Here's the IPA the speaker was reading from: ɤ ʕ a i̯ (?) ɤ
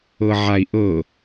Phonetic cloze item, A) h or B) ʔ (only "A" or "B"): B